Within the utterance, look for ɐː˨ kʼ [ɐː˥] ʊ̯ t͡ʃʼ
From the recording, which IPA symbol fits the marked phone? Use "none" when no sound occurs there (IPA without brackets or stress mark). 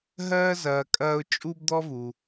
ɐː˦